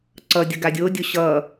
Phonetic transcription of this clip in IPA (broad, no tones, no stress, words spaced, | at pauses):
ǀʌ dʲʌɡadʲodʲo ɕʌ